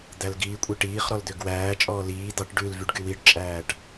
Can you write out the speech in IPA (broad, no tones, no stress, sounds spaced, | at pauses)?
d̪ æ l ɡ iː kʷʼ e ʈ iː χ ɾ ɔ l d̪ ø ɡ w æː t͡ʃʼ ɔː l iː d̪ ɑ ʈ ɖ ʉ l v y ɖ ɡ y w i ɖ t͡ʃʼ æː ʈ